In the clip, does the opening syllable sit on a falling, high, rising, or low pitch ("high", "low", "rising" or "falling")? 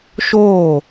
falling